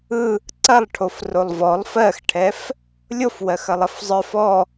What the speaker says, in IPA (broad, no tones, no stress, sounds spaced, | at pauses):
ɯ | ǀ ɐ lˠ ʈʰ o f r o lˠ v ɔ lˠ f ɜ x ʈʰ ɛ f | lʲ o f w ɜ x ɐ lˠ ɐ f zˤ ə˞ f ɔ